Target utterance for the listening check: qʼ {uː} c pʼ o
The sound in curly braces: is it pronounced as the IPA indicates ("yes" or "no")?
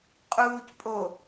yes